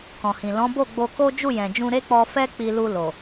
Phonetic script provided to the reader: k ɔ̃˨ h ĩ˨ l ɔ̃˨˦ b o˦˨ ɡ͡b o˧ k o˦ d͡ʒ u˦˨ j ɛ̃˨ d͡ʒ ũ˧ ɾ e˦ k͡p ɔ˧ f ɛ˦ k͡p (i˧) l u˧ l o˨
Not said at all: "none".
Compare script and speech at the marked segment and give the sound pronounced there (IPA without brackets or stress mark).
i˧